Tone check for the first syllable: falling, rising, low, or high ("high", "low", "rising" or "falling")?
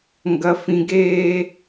high